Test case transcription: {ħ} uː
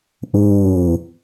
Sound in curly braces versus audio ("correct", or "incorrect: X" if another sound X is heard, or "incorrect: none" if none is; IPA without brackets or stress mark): incorrect: ʔ